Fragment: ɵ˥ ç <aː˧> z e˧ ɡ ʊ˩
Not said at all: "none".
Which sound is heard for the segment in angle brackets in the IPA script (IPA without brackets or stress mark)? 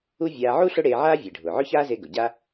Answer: aː˥